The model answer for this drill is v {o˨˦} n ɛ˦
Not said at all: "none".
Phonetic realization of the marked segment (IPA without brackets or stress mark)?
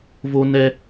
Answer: o˦